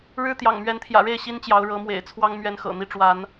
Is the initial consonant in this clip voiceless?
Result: no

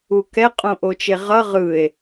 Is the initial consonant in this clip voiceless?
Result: yes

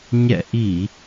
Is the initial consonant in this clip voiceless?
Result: no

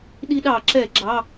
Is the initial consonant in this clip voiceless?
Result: no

